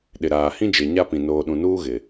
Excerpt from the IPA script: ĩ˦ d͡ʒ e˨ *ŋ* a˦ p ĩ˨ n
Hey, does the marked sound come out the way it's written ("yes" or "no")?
no